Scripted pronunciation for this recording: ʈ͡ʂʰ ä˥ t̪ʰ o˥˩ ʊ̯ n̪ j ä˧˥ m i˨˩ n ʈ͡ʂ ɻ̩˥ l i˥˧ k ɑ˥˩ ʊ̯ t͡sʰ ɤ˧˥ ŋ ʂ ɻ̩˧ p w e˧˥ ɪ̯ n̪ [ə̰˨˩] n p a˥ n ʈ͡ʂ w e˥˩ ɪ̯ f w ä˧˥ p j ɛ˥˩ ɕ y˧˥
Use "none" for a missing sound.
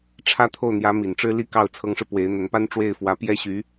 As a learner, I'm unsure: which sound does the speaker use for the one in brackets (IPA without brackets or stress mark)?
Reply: ə˧˥